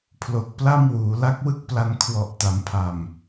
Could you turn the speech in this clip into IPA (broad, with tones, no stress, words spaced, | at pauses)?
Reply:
pʰlo˨˩k̚pla˥˩m wuː˩˦la˦˥k̚wɯ˥˩k̚pla˧n kʰwɔ˨˩ʔta˩˦mpʰa˨˩m